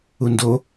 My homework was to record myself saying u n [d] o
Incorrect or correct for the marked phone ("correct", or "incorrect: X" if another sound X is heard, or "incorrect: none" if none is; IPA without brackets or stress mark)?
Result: correct